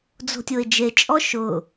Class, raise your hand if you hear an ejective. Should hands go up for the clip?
yes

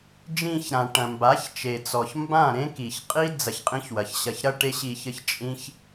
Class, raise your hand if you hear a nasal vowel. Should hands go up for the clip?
yes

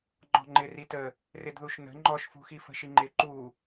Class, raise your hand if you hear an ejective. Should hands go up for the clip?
no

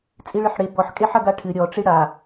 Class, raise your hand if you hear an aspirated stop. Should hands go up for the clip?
yes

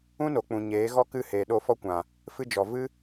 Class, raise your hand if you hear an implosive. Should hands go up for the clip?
yes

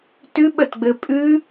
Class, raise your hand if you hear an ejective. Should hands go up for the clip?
yes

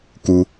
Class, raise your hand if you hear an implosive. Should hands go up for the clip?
no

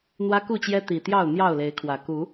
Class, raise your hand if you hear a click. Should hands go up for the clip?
no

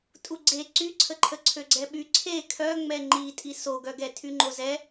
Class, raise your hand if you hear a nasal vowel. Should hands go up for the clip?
no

